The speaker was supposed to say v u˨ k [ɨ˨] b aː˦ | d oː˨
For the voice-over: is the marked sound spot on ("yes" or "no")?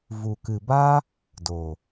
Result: yes